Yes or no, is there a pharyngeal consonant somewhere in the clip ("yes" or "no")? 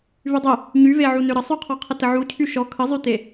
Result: yes